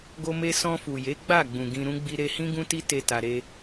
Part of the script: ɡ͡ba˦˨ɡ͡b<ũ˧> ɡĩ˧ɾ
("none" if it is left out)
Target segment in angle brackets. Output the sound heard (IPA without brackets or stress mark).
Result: ũ˨